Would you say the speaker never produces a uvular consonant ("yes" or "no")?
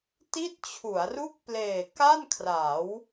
yes